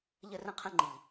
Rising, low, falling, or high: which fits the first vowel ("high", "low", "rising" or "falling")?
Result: high